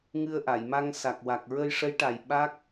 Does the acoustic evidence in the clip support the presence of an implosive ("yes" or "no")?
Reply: yes